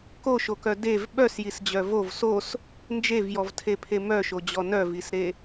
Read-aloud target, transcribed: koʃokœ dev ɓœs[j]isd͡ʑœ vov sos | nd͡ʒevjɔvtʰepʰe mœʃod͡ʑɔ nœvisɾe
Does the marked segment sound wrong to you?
no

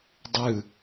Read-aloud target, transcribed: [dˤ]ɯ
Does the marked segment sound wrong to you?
no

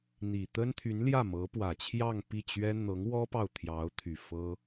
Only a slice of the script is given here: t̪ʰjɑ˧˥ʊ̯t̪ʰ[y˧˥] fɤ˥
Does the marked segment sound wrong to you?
yes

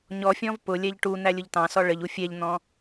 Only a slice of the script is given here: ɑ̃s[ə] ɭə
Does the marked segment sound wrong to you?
yes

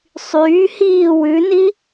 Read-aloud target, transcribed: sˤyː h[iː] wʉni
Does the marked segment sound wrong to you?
no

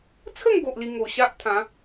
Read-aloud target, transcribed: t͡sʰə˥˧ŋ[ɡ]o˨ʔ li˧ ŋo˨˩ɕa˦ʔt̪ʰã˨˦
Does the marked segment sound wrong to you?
no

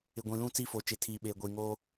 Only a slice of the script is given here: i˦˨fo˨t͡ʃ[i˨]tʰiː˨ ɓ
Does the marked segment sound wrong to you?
yes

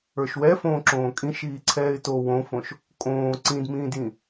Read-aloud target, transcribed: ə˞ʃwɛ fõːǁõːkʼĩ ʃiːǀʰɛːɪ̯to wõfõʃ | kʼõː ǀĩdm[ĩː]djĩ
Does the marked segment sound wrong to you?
no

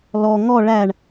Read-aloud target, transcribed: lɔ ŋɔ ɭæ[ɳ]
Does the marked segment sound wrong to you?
no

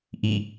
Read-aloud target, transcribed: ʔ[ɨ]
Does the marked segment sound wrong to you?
yes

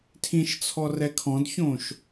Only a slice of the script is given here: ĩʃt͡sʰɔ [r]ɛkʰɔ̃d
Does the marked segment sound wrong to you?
no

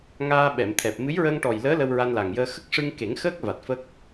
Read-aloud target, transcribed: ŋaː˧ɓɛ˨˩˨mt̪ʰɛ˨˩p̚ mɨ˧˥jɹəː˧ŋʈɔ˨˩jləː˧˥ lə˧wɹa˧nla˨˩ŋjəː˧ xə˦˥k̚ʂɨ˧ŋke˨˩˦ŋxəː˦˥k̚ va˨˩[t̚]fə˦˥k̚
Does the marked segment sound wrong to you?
no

